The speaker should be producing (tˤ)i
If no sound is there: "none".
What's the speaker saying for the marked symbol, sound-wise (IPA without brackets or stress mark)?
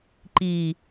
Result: ǃ